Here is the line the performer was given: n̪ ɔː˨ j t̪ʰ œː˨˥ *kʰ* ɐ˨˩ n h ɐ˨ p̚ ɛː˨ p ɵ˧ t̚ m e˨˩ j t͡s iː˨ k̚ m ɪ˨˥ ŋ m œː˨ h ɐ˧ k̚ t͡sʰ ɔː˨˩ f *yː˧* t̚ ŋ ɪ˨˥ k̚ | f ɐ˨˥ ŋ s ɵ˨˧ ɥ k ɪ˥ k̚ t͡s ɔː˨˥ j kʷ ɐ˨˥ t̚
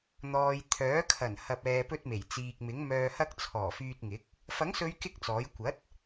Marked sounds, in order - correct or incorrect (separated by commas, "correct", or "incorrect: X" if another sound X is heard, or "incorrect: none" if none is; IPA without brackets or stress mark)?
correct, correct